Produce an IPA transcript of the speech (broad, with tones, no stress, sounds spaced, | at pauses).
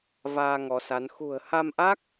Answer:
v aː˧ ŋ ɔ˨˦ s a˨˦ n x ṳ˨˩ ə̯ h a˧ m ʔ a˦˥ k̚